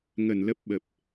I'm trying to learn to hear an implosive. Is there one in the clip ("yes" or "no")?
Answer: yes